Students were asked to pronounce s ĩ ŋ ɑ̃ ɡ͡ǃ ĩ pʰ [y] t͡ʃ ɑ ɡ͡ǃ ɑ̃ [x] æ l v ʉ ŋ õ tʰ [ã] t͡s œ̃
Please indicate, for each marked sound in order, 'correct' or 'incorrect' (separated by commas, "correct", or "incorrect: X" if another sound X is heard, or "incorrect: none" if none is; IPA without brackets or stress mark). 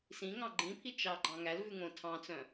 incorrect: i, incorrect: ŋ, incorrect: ɑ̃